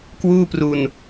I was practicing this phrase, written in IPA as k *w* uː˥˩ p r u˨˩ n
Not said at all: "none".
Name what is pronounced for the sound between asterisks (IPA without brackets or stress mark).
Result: w